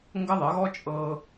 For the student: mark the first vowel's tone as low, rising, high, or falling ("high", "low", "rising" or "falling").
high